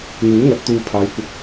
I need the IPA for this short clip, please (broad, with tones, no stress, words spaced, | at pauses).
n̪uː˨˥ŋɐ˨˥t̚ t̪uː˧pʰaː˨˧jkʷɐ˧k̚